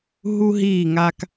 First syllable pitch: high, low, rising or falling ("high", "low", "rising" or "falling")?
high